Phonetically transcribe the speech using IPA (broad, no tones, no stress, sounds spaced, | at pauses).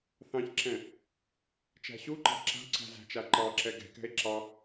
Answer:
θ ɑ̃ ç ǁ ɛ̃ | t͡ʃ æ̤ ɕ u ǃ ɑ̤ ǁ a̤ ǀ æ̤ z æ̤ t͡ʃ a ǃ ɑ ǁ ɛ ɡ ɛ̤ k ɛ̤ e̯ ǁ ɑ